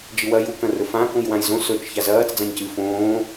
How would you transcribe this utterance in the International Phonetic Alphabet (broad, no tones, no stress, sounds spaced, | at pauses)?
d͡ʒ ɨ w ɐ j u k ɐ̃ r ɵ f ã k ũ j w ã j z õ s ɵ t͡ʃ ç a z ɐː t͡s d͡z ã ɲ c ɨ f õː